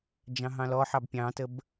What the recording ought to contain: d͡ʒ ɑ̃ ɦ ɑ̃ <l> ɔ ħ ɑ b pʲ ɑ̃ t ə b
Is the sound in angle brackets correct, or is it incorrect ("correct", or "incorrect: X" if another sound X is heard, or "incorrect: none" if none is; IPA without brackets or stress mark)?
correct